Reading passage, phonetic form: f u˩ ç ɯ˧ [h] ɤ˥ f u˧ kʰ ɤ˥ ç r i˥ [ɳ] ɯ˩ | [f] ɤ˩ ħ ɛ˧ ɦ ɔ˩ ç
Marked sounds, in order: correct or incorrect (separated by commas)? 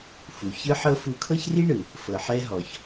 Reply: incorrect, correct, correct